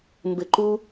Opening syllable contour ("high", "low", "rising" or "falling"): low